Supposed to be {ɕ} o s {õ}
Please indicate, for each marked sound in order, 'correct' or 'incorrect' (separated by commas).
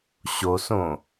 correct, correct